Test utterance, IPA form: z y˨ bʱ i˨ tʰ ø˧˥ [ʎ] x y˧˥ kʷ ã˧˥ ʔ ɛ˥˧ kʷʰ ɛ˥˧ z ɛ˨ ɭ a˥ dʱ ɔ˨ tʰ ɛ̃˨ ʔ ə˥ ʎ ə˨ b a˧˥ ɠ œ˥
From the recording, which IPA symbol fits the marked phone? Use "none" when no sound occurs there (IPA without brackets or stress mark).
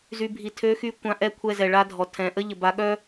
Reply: none